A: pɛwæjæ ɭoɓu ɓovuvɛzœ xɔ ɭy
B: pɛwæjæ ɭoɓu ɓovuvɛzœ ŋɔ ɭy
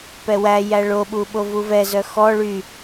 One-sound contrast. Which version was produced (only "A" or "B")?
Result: A